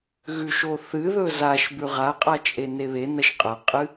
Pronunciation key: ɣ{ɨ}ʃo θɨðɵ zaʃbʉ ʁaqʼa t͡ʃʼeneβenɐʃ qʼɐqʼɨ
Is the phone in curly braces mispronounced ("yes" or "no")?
yes